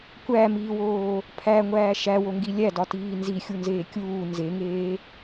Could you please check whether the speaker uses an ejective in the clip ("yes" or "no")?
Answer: no